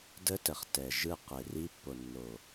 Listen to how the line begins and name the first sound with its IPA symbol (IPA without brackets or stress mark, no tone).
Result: d